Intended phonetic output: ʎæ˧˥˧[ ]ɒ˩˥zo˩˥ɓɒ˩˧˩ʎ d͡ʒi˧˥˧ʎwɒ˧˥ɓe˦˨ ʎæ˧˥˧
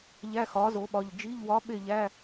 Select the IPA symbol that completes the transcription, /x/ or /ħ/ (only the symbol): x